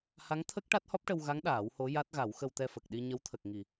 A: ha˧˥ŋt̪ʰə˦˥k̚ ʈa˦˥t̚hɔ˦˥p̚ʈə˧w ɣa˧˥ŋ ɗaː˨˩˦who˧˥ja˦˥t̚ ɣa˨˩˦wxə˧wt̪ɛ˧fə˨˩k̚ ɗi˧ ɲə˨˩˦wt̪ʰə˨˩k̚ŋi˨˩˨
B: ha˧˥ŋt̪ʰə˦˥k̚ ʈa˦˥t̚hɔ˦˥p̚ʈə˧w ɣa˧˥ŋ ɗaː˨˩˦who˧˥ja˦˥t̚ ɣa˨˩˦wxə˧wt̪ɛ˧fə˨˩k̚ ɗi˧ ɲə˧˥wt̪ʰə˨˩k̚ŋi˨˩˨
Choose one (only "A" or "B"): B